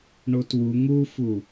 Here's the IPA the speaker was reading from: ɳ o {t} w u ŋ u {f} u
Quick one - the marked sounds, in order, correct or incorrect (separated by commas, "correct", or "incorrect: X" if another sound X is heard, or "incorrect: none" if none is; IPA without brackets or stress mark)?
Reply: correct, correct